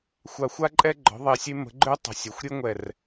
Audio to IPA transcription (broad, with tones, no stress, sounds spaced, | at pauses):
xʷ a˨˩ xʷ a˧ ǃʼ ɛ˧ ɡ͡ǃ ɔ̤˩˧ ðˤ e˨˩ sʲ e˧ m ə̤˩˧ ɡ͡ǃ ø˧ tˤ ə̤˨˩ sʲ œ˩˧ xʷ ɾʲ e˧ ŋʷ ɛ˨˩ r